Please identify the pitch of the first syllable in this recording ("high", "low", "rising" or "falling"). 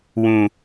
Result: low